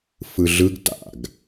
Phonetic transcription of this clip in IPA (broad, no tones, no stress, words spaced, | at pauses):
fɯɮɯɡ ta̰ɡ